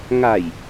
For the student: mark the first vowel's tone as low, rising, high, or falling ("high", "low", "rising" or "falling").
low